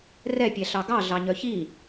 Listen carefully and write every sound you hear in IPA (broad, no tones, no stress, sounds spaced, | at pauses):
r ɛ pʲ ɛ ɬ ɑ ɡ ɑ ɮ ɑ ɲ œ ç i